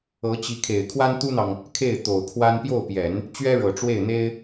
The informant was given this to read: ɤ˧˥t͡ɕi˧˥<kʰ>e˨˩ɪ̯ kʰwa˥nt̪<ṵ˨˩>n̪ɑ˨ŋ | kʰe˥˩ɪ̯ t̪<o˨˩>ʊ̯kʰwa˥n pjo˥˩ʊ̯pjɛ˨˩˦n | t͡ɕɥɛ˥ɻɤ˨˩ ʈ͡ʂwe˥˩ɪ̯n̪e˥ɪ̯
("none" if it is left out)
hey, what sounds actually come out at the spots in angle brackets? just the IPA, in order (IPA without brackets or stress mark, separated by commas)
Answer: kʰ, u˥, o˨˩